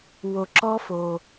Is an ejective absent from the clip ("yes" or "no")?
yes